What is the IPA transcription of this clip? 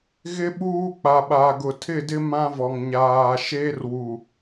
ɣ ɪ˦ ɓ uː˦ k͡p a˨ ɓ a˨ ɡ ʊ˨ tʰ ɪ˦˨ d ɪ˦ m ã˦ v ɔ˨ ŋ ɲ aː˨ ʃ eː˦ r w u˨

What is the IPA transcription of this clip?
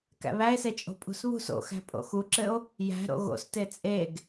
k æ̰ β æ e̯ s e t͡ʃʼ o̤ pʼ ṳ s β ṳ s o̰ x æ̤ pʼ o̰ x u ǁ ɘ o̯ | j æ̤ ɾ o̰ ɣ o̰ s t e t͡sʼ e ɡ

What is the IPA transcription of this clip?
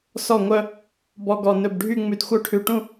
s ɔ˧˩ ŋʷ œ˧ | b ɔ˧ ɡ ɔ˧˩ n ɵ˧˩ b ɖʱ y˥˧ ŋ͡m ʉ˧ d xʷ œ˥˧ ʈʰ ʉ˧ ʈ ũ˥˧

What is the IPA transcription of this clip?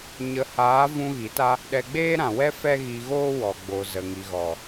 ɲ ə˨˦ h aː˨˦ v ũ˧ ɣ i˨˦ t a˦ | ɗ ɛ˧ ɡ͡b eː˦ ɾ ã˨ w ɛ˦ f ɛ˦ ɣ i˧ ɣ oː˦ w ɔ˨ ɡ͡b o˨ z ə˨ ŋ i˨ ɣ ɔ˨

